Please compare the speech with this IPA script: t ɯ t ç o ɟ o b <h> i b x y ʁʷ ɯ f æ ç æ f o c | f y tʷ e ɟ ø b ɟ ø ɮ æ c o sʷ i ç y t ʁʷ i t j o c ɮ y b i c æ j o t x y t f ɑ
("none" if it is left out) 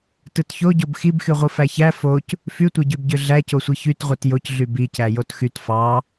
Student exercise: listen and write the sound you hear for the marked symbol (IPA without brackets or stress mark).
x